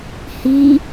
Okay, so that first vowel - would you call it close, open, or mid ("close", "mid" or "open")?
close